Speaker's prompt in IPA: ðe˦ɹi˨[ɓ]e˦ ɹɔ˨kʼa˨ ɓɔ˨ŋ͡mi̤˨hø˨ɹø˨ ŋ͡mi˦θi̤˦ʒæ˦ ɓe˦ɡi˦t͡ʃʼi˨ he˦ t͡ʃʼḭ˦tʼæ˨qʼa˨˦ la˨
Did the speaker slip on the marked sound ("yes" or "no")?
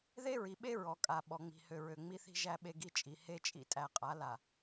no